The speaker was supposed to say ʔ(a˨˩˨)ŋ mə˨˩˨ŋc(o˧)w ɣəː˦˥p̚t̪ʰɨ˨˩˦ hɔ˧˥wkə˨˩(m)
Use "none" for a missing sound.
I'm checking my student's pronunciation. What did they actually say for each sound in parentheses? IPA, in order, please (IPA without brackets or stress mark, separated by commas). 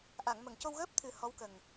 a˨˩˨, o˧, ŋ